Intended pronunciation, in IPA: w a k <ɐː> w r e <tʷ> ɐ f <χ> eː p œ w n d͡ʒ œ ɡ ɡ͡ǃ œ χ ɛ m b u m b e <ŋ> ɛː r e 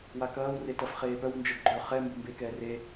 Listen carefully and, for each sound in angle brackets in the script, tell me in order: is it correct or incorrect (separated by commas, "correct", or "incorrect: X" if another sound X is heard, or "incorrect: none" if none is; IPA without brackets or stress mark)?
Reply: correct, incorrect: t, correct, incorrect: k